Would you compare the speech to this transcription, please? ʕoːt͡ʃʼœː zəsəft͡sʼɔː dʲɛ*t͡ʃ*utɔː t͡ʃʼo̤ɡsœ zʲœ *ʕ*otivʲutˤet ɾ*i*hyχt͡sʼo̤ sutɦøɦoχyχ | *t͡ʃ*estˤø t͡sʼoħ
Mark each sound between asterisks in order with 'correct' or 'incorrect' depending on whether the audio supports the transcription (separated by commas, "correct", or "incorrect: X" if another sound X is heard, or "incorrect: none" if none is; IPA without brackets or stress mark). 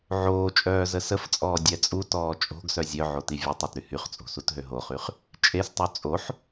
incorrect: t͡sʼ, correct, incorrect: y, incorrect: t͡ʃʼ